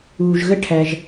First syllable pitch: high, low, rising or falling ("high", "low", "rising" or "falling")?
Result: low